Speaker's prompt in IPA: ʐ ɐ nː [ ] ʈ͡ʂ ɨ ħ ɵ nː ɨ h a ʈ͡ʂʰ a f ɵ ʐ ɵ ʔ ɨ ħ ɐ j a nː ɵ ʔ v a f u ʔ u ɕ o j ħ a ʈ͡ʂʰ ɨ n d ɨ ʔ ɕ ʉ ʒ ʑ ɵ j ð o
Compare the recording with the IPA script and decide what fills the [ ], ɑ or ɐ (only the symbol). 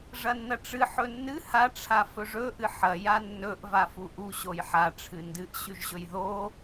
ɐ